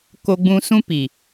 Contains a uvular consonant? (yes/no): no